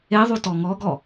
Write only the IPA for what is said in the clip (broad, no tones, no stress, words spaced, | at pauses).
eðˤu tɔŋɔɡɔ